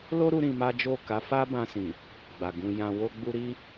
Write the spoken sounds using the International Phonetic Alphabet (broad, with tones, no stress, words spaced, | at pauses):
lo˦ ɾu˦ɾĩ˧ma˦d͡ʒo˦˨ ka˨˦fa˦ bã˧sĩ˨ | ɡ͡ba˨ɡũ˧ jã˧wo˦ɡ͡bu˦ ɾi˦